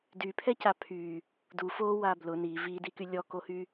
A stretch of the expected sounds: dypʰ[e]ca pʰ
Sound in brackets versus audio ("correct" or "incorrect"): incorrect